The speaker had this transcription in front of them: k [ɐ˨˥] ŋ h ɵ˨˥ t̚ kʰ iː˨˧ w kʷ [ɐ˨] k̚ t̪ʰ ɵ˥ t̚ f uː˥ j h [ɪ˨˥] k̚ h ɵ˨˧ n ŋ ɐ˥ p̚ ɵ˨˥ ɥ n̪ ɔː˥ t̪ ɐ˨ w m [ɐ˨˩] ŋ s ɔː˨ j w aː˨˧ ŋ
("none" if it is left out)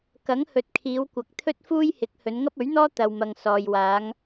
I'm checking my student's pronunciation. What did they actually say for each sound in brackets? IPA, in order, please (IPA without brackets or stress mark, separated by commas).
ɐ˨˥, ɐ˨, ɪ˨˥, ɐ˨